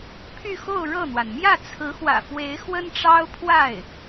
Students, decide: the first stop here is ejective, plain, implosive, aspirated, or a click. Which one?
aspirated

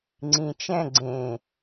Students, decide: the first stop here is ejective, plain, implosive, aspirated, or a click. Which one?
click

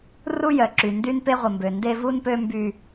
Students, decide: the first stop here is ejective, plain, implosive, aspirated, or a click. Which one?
click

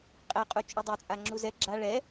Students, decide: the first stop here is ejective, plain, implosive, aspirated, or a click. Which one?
ejective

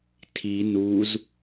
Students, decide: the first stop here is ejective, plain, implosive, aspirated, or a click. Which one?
aspirated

